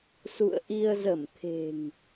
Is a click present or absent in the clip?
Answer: absent